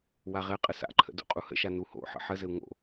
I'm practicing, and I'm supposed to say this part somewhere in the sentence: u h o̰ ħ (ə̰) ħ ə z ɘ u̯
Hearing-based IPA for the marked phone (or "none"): ə̰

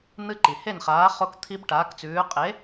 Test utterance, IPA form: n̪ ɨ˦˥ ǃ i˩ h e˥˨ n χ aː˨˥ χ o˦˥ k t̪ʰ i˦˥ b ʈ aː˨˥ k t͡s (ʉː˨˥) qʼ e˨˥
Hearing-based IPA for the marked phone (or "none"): ʉː˨˥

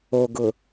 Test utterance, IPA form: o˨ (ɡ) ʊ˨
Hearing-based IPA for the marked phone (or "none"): ɡ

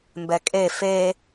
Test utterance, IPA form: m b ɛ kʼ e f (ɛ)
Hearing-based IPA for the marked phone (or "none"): e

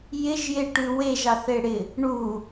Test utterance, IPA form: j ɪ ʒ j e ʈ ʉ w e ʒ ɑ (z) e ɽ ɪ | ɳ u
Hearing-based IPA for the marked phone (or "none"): θ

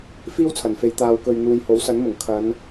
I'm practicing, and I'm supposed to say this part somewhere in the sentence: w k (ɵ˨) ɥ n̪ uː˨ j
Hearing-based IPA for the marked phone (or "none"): ɵ˨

